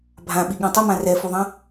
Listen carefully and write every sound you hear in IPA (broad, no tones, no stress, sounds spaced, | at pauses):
bʱ ã ɓ i ɠ ɛ̃ tˤ ə m ã r ɛ f u ðˤ ɐ̃